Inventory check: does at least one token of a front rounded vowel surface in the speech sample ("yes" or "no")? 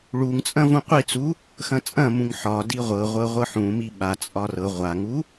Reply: no